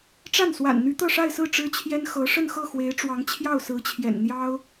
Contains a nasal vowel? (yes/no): no